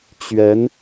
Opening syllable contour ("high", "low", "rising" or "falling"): rising